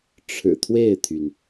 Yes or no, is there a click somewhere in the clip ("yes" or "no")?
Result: no